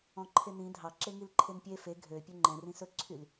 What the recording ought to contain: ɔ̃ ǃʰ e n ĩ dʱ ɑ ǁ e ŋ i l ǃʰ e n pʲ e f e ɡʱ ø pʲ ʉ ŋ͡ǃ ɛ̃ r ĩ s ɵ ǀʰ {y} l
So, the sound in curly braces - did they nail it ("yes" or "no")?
yes